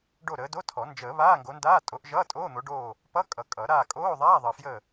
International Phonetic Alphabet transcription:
ɖo˦˨ɾəː˨˦do˧˥˧tʰɔ˨˩˦ nd͡ʒəː˨˩˦ βaː˧˥˧ŋɡo˨˦ndaː˧˥˧ tʼo˨˦ʔʒʌː˧˥˧ tʼoː˧˥˧n̪o˨˦ɖoː˦˨ | pʌ˧˥˧kʼʌ˨˩˦ kʼʌ˨˩˦ ɾaː˦˨kʼoː˧˥˧ ðˤaː˧˥˧ðˤəː˨fjə˦˨

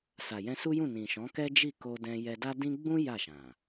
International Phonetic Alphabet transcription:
sa˨jɛ̃˧su˦jũ˦˨ nĩ˨ ʃɔ̃˨˦kɛ˦d͡ʒi˦˨ ko˧dɛ̃˧ jɛ˧da˦dĩ˦ ɡ͡bũ˦ ja˦˨ʃã˨

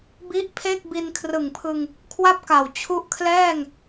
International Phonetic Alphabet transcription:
bi˦˥ʔpʰe˥˩k̚bi˧n kʰrɯ˨˩ŋpʰɯ˧ŋ | kʰwa˥˩p̚ka˨˩w t͡ɕʰu˦˥ʔkʰlɛː˥˩ŋ

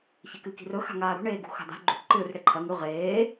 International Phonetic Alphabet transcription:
çekɨki̤rɵ xa̤ŋaːɾṳ ɳeːɡṳxa̤d̪a̤ ɡ͡ǃṳʈ ǃɨːrɽeǃʰɐ ŋʉ ʁeː

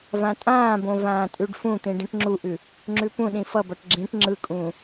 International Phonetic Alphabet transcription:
vãtʼãːbõ vãːtʼʉɖfũt̪ĩ ɖĩʈŋ͡ǁuʔʉ | ŋ͡ǁʉpũɗĩ fʌbʌʈ ɡ͡ǁĩʈ ŋ͡ǁɯkʼũː

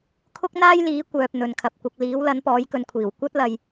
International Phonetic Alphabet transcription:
kʰʊ˥k̚n̪aː˥j liː˨˥kʷœː˨p̚ n̪ɵ˨nkʰɐ˨p̚ kʷɐ˨k̚liː˨˥w lɐ˨˥npɔː˨˥jkɵ˨˧nkʷʰiː˨˩w kʷɐ˥t̚lɐ˨j

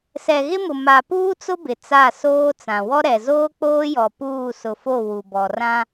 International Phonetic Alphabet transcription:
sɛ˨ɣɪ˦mʊ˨ ma˨puː˦t͡sʊ˦ bɪ˨t͡sa˦˨soː˦t͡sã˨ wɔ˦ɾɛ˨ zoː˦k͡poː˦jɔ˨ puː˦˨sʊ˨fo˦˨ wu˨bɔ˨rã˦

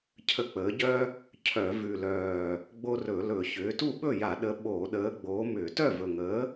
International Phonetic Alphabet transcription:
cʰə˨˥k͡pəː˩˧ɟœ˦ | cʰœ˧˩˧ vʉ˨˩lœː˨˩ | ɡ͡bo˦ rɵ˧˩˧lɵ˧˩˧ çʏː˩˧tu˥˩ ɓɵ˥˩ja˧˩˧ ɗə˨˥ ɓoː˧˩˧ɗəː˨˥ ɡ͡boː˨˥mʏː˧˩˧ tœ˥˩vɵ˨˩ŋəː˨˥

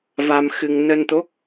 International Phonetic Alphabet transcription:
va˧mxɨ˧ŋ nə˧nt̪o˦˥k̚

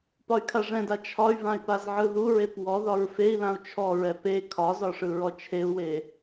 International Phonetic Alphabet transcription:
pɒy̯kʰaʐɛ̃da t͡ʃʰɒy̯vãy̯ pazʕɯðuɹep wɔðɒɹ fei̯lãu̯ t͡ʃʰɔɹɛ pe kʰɒzɒ ʂɯɹɔt͡ʃʰeu̯we

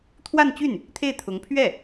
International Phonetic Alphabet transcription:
t̪ʰwa˥˧nt͡ɕy˥˩n | t̪ʰe˥˩ɪ̯t̪ʰʊ˧˥ŋ pʰɥɛ˥˩

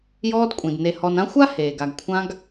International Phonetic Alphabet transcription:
jɔː˦dkʷʼĩ˩dne˨ hɔ˨nã˦ xʷa˥ heː˩ɡa˨ɡkʷʰã˦ɡ

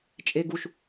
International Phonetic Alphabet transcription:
t͡ʃʼeɡuʃ

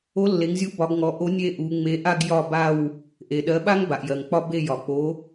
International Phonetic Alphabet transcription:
o˨˥lːe˩˧ŋzʲu˨˥ bɒ˩˧ɡŋɔ˩˧ʔo˨˥ nʲe˦˨ʔu˩˧ ŋ͡me˩˧ʔa˦˨ɡ jɒ˦˨ba˦˨w | ʔe˩ɗɜ˩˧ɓa˦ŋ ba˩ʔjɜ˩ŋk͡pɒ˦ be˦˨jɒ˩k͡po˨˥

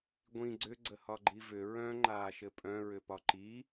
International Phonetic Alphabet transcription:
ɡʷĩ ɡ͡ǀʏɡ͡ǀəhɒ ɡ͡ǃivʏ ɹœ̃ ŋ͡ǃaːʃɘpʼœ̃ ɹʏpɒǃi

